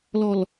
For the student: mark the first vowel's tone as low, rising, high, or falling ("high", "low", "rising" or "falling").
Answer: low